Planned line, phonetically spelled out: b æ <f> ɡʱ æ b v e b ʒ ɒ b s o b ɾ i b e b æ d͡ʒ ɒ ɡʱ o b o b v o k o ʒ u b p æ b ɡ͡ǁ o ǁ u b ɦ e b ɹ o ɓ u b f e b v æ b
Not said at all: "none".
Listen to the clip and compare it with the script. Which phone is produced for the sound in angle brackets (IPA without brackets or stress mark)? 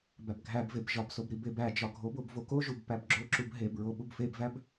b